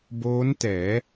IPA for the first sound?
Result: b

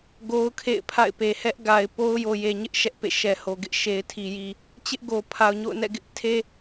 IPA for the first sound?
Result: ɡ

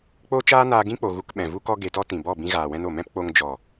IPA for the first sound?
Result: k͡p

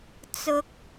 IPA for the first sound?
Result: t͡s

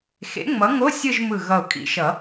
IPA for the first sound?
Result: x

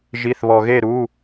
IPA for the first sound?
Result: ʒ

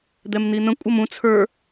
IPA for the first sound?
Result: d̪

